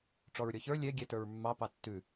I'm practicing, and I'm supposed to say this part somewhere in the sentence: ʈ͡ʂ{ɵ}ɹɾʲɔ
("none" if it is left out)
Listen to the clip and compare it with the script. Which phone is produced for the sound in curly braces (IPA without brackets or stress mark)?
ɔ